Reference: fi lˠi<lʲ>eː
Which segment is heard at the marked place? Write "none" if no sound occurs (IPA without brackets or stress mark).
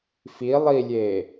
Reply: lʲ